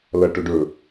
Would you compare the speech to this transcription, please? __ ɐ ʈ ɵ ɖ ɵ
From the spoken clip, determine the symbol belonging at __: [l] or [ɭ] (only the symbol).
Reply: l